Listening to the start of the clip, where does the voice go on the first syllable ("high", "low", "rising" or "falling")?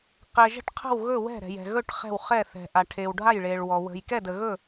low